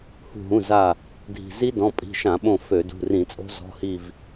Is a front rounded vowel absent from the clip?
no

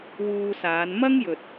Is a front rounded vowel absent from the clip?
yes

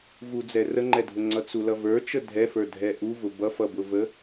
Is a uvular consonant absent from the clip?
yes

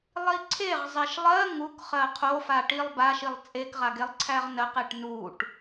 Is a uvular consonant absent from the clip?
no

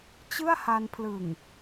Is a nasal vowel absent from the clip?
yes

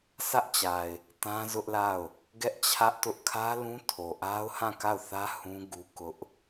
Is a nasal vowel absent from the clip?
no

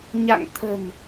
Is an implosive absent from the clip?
yes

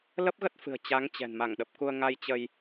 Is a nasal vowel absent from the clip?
yes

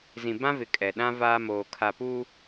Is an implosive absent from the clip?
no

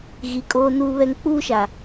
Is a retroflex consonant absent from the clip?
yes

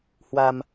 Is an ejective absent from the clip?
yes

